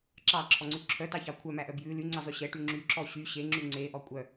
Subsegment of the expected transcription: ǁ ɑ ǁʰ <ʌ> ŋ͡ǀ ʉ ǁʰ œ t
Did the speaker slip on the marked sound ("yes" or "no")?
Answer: yes